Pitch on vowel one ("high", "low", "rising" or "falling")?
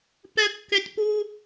high